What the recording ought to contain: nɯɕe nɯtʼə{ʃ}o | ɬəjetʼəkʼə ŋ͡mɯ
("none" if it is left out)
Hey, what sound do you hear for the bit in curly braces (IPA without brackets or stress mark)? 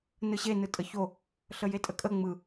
ç